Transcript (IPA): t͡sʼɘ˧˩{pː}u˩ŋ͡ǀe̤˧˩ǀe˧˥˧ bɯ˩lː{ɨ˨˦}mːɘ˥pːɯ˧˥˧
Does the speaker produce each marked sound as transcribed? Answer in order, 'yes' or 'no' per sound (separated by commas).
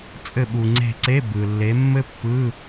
no, no